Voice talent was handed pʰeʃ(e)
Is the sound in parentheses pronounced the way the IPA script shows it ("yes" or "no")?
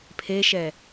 no